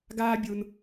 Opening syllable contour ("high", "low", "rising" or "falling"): high